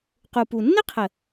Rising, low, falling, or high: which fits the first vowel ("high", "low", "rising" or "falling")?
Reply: low